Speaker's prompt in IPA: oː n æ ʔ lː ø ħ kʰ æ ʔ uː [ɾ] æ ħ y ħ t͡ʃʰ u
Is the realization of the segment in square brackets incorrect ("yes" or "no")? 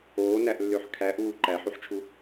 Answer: yes